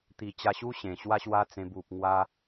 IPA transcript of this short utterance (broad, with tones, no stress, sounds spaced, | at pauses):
t̪ i˨˩ t͡ɕ a˧ ɕ u˦ ɕ ẽ˨˩ ɕ w a˦ ɕ w a˦ t͡s ẽ˧ b u˨ p̚ ŋ w a˧